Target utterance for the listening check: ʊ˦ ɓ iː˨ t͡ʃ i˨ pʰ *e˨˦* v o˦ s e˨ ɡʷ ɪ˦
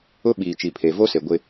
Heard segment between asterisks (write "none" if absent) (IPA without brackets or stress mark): e˨